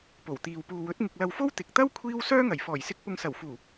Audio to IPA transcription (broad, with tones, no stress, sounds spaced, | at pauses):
p o˨˩ w t̪ iː˨ w p uː˨ w ɵ˨˥ t̚ ŋ ɪ˧ k̚ l ɐ˧ w f o˥ w t̪ ɪ˨ k̚ t̪ ɐ˥ w kʷʰ iː˥ w s œː˥ ŋ ɐ˨˩ j f ɔː˨˩ j s ɪ˧ k̚ p ʊ˨ ŋ s ɐ˨˩ w f uː˨˩